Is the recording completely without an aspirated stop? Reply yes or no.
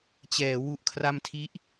no